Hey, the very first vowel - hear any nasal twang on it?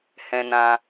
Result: yes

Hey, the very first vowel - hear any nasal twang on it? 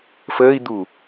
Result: no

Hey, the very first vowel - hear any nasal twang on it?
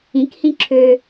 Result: yes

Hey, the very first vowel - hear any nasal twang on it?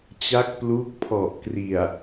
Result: no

